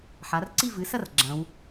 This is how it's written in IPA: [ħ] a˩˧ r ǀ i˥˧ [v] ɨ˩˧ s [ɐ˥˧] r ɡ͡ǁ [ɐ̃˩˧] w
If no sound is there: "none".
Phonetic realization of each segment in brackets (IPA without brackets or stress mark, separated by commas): ħ, v, ɐ˥˧, ɐ̃˩˧